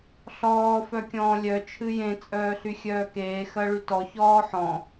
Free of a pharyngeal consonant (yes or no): no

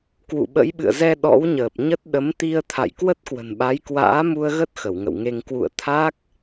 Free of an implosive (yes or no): no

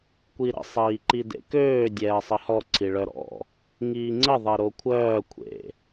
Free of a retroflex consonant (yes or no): no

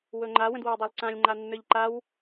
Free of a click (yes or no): no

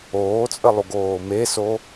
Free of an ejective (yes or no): no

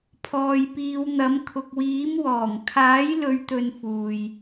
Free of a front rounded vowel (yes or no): yes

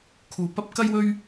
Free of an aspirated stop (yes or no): no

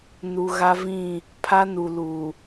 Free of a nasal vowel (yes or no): no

